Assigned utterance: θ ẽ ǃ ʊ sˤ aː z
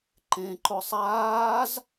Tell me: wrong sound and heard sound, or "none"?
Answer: θ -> ǃ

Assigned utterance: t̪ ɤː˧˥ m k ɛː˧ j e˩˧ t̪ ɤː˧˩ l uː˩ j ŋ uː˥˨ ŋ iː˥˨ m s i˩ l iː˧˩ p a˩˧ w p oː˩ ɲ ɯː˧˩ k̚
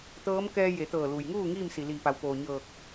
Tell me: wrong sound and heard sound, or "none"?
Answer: ɯː˧˩ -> ɤː˧˩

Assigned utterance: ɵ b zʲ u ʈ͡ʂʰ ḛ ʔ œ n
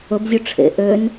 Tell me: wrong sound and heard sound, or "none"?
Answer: œ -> ø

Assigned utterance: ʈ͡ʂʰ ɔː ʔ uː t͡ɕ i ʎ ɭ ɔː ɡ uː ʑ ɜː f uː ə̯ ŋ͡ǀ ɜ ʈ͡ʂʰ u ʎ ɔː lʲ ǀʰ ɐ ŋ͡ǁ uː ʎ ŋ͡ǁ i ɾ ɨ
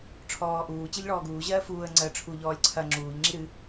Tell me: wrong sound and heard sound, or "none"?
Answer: none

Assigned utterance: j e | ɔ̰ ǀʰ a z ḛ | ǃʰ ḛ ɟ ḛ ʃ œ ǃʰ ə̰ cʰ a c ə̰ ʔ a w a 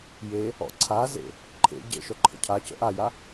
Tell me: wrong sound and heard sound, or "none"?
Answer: w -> j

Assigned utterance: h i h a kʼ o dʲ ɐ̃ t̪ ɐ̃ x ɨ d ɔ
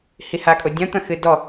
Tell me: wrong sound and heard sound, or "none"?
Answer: none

